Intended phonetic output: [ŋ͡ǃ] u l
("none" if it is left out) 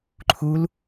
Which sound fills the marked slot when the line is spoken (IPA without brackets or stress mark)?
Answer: ǃʰ